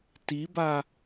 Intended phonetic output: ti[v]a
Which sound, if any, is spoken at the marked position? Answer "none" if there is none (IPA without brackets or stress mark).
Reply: b